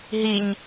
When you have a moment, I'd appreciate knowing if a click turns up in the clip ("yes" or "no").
no